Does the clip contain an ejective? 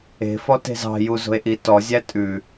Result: yes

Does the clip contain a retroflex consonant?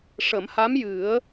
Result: yes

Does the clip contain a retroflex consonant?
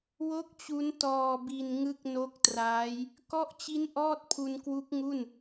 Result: no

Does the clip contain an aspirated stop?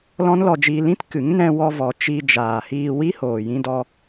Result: no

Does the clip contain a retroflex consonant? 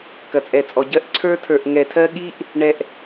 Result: yes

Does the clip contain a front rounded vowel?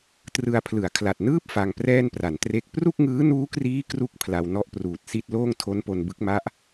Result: no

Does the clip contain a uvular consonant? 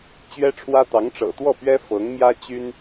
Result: no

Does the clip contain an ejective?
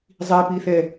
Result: no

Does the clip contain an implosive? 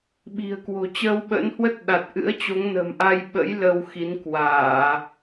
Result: yes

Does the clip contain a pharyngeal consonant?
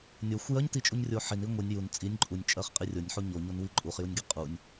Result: yes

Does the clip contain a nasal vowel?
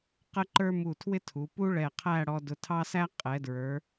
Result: no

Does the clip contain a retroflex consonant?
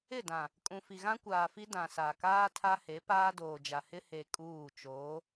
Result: no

